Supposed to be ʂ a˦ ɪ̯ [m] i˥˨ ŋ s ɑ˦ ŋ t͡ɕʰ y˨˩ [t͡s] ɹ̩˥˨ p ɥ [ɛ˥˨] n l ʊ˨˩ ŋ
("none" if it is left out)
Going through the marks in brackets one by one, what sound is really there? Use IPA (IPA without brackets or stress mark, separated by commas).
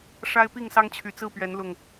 p, t͡s, ɛ˨˦